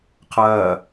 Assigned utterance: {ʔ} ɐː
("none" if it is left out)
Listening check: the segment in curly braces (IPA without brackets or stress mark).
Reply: qʰ